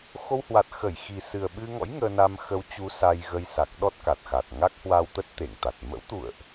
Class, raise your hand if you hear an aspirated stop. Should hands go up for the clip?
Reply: no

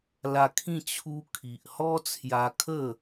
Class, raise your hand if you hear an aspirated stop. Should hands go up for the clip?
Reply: yes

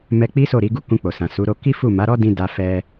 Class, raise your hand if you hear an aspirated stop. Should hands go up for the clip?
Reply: no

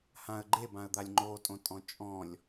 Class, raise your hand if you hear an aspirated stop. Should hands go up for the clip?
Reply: no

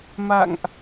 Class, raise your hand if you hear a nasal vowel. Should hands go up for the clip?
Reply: no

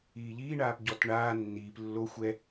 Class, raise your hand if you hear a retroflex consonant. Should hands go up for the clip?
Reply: yes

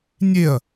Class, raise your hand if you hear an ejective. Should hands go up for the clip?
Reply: no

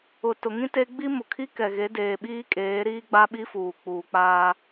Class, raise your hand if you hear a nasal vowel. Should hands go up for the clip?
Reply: yes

